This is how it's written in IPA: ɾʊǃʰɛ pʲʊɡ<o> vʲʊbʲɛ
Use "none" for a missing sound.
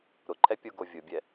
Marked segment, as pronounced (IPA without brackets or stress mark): o